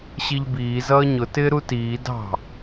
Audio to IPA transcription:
ɕ i ʎ b iː z ʌː ɲ ʊ t ɪː ɾ u t iː d ɑ̤

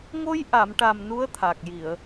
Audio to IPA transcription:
ŋ o˧ j ʔ a˨˩˨ m ʈ a˨˩ m n u˧˥ ə̯ t̪ʰ a˨˩ k̚ j i˨˩˨ ə̯

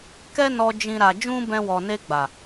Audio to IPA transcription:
k ɛ˦ n ɔ˧ d͡ʒ ĩ˦ ɾ a˧ d͡ʒ ũ˦ b ɛ̃˧ w ɔ˨ n e˧ ɡ͡b a˨

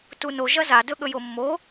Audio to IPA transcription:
t u n o ʒ ɐ z a d ɵ ɠ ɵ j o mː o

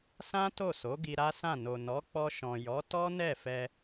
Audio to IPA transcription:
s ã˦ t o˦˨ s o˨˦ ɡ i˧ ɾ a˦ s ã˦˨ n o˨ n ɔ˨˦ k͡p ɔ˧ ʃ ɔ̃˨ j ɔ˨˦ t ɔ˦ n ɛ˦˨ f ɛ˧

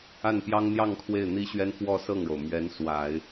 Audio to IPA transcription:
a˥˩ n p j ɑ˥ ŋ n̪ j ɑ˥˧ ŋ kʰ w e˥˩ ɪ̯ n̪ i˥ ɕ ɥ ɛ˥ n f w ɔ˥˧ s ɤ˥˩ ŋ ɻ o˩ ʊ̯ m ɥ ɛ˧˥ n s w a˨˩˦ ɪ̯

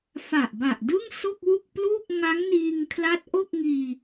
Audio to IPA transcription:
f a˨˩ ʔ b a˨˩ ʔ d ɯ˥˩ ŋ s o˥˩ k̚ w u˥˩ k̚ p l uː˥˩ k̚ ŋ a˦˥ ŋ n iː˧ ŋ kʰ l a˦˥ t̚ ʔ o˥˩ k̚ ŋ iː˧

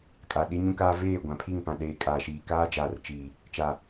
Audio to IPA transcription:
kʼ a˨ ɗ i˦ ɲ ũ˦ k aː˦ v eː˦˨ ɡʷ ã˨ pʰ i˦˨ ŋ p ã˨ ɗ eː˨ kʼ aː˨ ʃ iː˨ k aː˦ d͡ʒ aː˨ r t͡ʃ iː˨ | t͡ʃ a˨

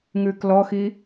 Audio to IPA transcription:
ŋ ʉː k l ɔ x i

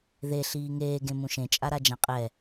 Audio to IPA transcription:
ð e ɬ iː ŋ eː ɡ ẽ m ũ ʃ ẽ t͡ʃʼ a ɾ a d͡ʒ ã qʼ ɛ

